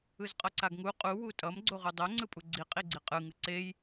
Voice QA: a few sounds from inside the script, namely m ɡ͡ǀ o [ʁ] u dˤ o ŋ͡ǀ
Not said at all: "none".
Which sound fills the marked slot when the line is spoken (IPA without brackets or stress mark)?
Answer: ʁ